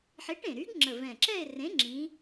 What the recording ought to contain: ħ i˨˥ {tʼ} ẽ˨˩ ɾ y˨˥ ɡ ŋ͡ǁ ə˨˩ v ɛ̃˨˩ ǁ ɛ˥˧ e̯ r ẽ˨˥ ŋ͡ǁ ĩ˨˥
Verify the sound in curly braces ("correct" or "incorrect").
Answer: incorrect